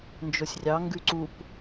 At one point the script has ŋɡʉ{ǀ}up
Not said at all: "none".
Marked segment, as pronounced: ǀ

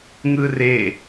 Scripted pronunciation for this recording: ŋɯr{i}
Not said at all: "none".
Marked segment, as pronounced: e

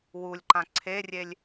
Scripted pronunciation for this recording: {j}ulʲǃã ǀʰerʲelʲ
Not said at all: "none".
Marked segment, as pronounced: w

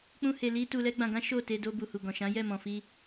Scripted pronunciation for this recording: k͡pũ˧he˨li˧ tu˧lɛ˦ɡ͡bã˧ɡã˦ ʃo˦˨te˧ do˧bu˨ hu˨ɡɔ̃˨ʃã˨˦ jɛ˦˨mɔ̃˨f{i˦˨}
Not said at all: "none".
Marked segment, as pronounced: i˧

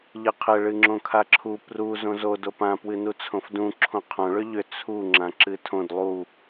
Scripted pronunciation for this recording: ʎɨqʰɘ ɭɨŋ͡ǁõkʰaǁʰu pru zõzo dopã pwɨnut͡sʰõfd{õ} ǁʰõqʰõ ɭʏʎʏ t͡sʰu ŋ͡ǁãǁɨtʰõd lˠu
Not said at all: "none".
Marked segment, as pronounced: ũ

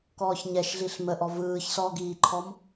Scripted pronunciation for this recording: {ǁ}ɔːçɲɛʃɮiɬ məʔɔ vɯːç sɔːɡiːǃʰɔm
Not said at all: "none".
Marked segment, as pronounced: k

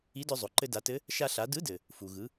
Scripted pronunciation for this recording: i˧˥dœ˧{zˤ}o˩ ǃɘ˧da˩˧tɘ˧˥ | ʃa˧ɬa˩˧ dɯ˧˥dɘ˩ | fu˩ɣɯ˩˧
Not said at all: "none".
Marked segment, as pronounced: zˤ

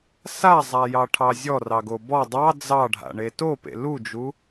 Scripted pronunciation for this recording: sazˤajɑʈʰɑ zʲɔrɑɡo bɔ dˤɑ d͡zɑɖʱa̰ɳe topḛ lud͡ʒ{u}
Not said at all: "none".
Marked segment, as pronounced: u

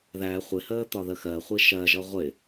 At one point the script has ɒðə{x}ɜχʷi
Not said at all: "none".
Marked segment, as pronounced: x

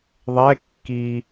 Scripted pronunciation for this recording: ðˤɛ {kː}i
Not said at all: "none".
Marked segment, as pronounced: kː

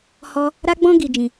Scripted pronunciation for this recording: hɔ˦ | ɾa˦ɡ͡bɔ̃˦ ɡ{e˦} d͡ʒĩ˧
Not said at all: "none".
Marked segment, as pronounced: i˦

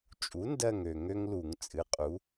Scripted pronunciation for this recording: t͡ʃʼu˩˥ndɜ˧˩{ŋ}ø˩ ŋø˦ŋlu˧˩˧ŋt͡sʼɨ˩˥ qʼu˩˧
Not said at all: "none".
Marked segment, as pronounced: ŋ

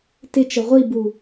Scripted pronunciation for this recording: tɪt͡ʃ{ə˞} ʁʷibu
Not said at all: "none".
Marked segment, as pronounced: ə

